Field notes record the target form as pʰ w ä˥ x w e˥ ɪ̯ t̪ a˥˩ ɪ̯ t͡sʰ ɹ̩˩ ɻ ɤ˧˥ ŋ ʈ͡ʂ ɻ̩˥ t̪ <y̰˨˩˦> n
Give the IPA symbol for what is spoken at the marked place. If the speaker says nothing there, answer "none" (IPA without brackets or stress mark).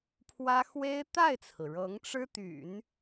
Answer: y̰˨˩˦